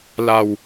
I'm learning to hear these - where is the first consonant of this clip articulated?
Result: tongue tip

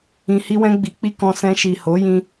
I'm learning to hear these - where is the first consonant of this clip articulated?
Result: throat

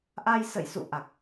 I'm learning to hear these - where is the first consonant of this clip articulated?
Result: throat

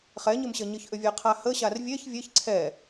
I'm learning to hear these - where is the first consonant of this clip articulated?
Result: uvula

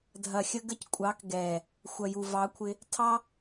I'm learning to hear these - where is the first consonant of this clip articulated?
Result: tongue tip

